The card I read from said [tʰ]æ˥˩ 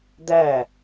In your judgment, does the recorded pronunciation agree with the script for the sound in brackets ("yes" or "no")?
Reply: no